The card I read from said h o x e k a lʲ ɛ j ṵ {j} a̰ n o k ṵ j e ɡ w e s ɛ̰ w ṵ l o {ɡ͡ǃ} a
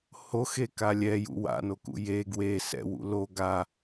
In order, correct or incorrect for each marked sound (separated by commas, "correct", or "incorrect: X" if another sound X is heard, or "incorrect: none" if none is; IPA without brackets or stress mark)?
incorrect: w, incorrect: ɡ